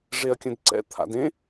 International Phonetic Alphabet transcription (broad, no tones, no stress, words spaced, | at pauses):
ʐeɐ̯kʲə̃dǀɛ̰ t̪ʰa̰dẽ